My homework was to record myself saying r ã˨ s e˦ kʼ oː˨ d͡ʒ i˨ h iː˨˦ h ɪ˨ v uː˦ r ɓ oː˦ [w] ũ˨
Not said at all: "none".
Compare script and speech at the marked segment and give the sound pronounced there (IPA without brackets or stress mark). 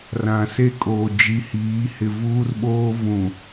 v